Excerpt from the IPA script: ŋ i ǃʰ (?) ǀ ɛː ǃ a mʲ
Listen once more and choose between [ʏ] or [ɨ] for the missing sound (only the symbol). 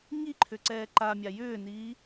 ʏ